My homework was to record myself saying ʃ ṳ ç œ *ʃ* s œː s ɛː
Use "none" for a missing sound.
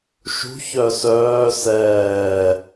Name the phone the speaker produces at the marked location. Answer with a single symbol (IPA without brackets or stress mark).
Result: none